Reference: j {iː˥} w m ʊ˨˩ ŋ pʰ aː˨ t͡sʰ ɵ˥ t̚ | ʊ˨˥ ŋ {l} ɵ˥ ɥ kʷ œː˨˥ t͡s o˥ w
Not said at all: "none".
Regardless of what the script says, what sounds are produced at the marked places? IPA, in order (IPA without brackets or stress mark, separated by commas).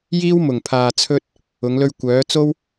iː˥, l